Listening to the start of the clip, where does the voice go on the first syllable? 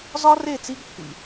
high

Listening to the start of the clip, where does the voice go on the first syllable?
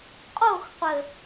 falling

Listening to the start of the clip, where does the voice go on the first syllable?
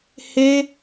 high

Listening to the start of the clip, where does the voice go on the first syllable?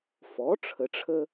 rising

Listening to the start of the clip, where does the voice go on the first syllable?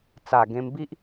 low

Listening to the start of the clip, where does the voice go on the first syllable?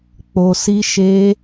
low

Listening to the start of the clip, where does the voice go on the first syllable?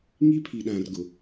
high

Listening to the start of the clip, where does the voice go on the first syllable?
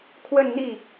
falling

